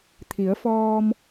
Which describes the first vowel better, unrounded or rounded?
unrounded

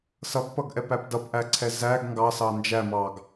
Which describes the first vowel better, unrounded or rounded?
unrounded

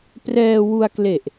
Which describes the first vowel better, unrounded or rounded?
unrounded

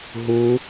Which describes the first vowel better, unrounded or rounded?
rounded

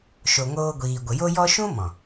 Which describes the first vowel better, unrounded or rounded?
rounded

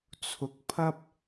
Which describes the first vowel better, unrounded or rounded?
rounded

